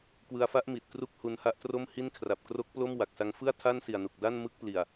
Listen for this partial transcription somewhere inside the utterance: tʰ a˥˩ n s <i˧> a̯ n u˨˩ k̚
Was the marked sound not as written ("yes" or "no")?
yes